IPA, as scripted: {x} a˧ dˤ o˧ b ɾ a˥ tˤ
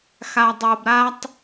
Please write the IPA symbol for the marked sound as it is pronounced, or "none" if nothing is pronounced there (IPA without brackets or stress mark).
x